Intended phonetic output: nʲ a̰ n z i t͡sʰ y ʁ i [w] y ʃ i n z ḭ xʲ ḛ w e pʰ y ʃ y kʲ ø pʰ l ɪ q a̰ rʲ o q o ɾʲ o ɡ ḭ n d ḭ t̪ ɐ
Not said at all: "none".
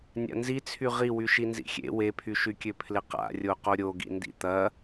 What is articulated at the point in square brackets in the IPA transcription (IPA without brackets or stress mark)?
w